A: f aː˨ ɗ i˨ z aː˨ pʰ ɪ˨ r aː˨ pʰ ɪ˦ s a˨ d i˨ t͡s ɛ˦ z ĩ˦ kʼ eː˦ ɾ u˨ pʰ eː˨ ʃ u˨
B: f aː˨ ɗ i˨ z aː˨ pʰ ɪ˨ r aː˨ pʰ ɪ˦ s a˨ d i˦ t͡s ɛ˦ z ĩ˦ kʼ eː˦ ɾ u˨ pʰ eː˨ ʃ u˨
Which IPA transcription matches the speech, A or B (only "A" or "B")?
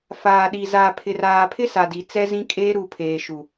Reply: A